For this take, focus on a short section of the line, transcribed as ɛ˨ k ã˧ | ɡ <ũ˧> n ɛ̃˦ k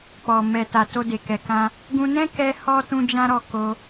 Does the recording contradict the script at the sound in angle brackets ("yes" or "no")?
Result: no